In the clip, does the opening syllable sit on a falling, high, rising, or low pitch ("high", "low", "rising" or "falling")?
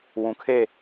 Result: low